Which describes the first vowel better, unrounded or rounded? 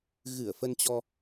unrounded